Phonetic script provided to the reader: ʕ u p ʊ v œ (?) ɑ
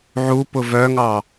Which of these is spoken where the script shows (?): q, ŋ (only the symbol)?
ŋ